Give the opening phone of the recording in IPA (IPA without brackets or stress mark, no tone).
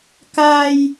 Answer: k